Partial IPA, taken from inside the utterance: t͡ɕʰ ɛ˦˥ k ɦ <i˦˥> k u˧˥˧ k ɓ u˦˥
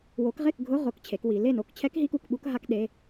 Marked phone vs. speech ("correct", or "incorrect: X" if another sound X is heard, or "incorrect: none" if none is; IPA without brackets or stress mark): correct